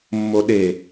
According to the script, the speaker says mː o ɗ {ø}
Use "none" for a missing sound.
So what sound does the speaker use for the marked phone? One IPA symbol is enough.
e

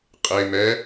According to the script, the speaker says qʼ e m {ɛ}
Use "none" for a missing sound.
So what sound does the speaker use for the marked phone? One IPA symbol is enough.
ɛ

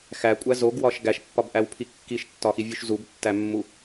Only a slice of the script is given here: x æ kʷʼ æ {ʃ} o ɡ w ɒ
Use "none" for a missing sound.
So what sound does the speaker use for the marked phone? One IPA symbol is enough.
z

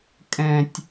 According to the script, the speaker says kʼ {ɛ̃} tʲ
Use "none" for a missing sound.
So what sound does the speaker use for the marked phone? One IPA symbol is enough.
ɛ̃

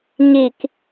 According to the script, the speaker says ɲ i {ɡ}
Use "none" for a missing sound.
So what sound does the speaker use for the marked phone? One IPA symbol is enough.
k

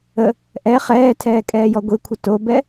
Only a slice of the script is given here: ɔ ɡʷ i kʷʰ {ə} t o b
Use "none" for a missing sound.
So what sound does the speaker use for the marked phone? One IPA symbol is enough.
ə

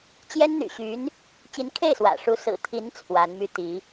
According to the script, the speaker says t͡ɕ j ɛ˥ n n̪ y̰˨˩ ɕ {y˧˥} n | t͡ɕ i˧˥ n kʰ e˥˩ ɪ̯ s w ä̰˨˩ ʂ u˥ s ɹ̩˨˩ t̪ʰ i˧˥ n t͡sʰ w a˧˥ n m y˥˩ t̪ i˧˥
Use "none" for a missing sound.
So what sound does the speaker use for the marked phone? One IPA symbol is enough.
y˧˥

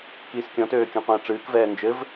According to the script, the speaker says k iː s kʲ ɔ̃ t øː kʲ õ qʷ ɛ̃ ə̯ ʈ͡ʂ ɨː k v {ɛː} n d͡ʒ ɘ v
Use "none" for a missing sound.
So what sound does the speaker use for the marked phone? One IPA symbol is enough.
ɛː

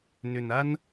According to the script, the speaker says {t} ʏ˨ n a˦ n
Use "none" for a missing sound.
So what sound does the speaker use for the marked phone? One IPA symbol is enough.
n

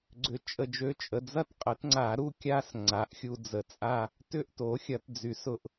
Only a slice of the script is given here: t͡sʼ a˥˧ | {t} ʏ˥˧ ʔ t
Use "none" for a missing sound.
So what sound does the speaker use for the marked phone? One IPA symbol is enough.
t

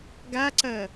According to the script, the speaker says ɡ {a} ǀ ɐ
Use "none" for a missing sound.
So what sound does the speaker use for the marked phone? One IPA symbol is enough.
a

